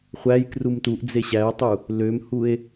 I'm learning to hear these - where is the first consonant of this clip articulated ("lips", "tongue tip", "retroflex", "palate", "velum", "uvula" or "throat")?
uvula